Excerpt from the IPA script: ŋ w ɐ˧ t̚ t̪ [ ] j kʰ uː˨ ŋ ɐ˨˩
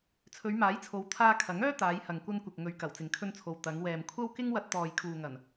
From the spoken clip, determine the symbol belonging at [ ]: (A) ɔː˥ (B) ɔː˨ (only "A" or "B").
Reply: B